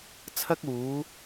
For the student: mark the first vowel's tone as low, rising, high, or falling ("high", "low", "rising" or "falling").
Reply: high